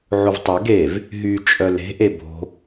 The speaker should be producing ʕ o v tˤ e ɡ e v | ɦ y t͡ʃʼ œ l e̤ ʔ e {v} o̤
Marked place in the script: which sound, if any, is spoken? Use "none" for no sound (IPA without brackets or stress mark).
b